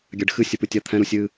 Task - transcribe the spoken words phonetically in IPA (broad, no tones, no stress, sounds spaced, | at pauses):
ɡʲ a ɖ x ɨ sʲ ə p ɨ tʲ a t̪ʰ ɛ̃ ɾ u sʲ ɨ